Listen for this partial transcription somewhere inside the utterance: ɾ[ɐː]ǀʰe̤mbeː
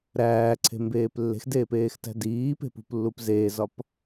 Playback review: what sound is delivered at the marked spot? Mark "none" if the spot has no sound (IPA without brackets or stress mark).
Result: æː